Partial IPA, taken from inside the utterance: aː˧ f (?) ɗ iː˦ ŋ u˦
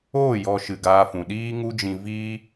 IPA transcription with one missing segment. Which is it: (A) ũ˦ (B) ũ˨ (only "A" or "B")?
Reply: B